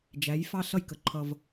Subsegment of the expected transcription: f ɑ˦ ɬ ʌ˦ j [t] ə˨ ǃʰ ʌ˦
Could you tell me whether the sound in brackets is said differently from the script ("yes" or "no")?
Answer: yes